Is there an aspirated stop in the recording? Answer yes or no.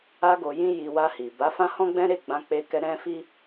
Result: no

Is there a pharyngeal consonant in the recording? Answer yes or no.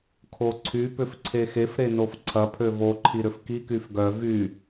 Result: no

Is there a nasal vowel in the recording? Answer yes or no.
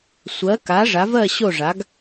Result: no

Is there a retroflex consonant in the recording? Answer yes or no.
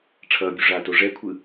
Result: yes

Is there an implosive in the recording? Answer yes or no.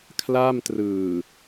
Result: no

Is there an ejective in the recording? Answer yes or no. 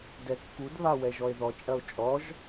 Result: yes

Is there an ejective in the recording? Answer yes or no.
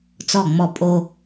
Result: yes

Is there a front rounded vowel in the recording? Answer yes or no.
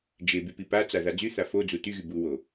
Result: yes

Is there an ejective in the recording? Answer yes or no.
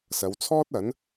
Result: no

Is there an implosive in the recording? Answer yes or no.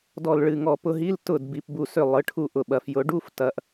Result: yes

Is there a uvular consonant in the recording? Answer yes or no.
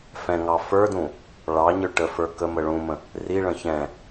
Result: no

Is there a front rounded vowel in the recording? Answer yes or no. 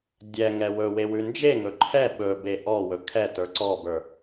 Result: no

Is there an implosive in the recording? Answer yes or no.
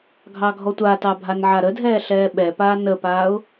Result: yes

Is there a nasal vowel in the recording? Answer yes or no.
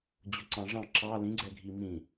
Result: yes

